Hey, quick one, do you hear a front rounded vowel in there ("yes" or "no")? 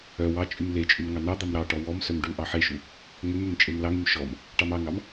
yes